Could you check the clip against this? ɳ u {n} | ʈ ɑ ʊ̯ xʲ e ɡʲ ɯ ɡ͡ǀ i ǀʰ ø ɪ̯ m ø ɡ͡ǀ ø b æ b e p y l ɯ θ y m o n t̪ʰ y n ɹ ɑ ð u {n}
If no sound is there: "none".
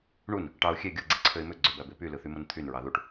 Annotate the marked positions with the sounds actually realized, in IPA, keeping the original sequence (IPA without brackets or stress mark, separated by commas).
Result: n, ʈ